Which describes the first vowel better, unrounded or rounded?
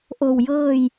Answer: rounded